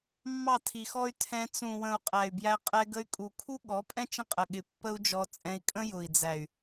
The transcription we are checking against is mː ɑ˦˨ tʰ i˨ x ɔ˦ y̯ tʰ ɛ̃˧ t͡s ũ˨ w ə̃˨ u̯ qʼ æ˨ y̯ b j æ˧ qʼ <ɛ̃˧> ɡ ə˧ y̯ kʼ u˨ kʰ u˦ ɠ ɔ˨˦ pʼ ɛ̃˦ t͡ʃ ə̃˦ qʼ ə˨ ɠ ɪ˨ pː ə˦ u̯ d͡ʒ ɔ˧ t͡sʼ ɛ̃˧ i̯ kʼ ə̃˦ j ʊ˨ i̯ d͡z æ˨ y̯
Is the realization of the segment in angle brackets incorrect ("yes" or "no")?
yes